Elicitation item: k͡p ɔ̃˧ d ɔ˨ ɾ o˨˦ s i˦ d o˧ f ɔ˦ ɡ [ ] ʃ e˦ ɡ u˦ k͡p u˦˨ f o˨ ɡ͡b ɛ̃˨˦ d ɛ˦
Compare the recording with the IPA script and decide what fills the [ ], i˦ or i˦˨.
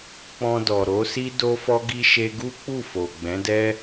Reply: i˦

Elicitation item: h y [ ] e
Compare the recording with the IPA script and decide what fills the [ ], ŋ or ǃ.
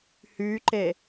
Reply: ǃ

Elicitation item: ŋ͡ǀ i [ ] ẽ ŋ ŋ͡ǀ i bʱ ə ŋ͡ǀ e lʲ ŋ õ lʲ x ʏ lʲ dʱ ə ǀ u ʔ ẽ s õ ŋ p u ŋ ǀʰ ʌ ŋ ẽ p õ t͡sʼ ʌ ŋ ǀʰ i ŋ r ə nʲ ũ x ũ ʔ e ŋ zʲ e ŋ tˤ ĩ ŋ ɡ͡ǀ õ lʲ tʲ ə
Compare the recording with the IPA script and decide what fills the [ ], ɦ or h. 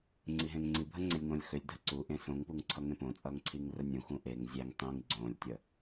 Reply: ɦ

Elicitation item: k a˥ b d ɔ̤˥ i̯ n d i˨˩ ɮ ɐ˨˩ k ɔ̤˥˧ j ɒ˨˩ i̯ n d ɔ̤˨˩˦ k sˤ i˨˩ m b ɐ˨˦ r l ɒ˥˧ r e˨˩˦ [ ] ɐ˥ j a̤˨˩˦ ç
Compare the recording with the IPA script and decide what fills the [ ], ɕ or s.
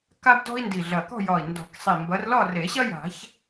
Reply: ɕ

